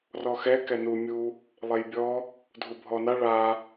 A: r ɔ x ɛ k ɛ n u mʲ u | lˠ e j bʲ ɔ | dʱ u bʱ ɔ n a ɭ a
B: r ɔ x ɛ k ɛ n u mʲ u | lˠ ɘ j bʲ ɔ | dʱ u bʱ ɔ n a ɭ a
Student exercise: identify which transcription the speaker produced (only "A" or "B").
A